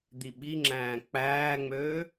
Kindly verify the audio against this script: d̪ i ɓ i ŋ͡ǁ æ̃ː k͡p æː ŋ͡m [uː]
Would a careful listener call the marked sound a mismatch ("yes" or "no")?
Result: yes